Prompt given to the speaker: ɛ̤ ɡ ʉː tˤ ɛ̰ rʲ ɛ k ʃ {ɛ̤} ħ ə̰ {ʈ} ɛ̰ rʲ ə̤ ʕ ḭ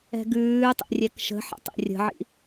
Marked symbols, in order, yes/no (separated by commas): no, no